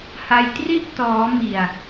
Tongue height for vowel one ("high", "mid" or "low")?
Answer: low